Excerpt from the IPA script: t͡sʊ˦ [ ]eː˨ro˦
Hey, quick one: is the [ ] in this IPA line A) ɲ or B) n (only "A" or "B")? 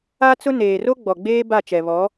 B